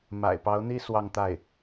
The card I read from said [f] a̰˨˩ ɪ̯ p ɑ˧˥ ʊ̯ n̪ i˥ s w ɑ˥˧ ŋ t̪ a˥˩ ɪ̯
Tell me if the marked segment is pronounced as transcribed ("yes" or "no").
no